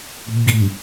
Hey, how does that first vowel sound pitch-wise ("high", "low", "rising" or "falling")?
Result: low